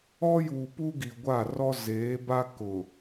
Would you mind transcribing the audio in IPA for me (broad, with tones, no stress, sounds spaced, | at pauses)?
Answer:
ɔ˦ j uː˨ p u˦ ɡ i˨ ɡʷ a˦˨ r ɔ˦ z eː˨˦ b a˦ k ʊ˨